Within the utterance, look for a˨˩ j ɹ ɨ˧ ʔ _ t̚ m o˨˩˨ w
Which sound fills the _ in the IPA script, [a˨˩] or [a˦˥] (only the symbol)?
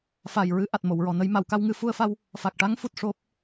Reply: a˨˩